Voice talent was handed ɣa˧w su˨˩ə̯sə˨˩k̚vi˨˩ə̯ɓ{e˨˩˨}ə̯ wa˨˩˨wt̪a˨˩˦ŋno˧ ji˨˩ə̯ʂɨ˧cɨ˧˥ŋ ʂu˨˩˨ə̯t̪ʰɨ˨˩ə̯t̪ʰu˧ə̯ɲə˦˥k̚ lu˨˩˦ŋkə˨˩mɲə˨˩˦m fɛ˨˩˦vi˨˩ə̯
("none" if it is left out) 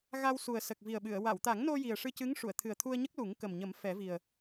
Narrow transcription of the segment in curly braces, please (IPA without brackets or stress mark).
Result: ɨ˨˩˨